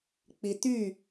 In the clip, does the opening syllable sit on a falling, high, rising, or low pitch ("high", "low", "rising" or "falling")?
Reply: low